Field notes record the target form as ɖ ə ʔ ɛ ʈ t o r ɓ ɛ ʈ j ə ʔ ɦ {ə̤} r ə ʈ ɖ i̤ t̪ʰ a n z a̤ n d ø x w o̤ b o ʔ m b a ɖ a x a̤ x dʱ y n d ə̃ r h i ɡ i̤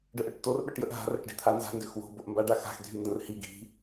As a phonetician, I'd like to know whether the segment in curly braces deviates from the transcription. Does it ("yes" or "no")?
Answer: yes